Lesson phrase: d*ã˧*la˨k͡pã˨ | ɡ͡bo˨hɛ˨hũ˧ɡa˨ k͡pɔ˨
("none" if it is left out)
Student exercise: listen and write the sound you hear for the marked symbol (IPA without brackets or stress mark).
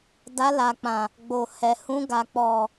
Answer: a˧